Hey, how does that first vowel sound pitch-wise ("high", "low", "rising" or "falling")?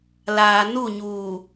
low